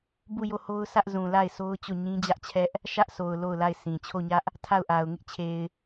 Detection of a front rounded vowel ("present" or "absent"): absent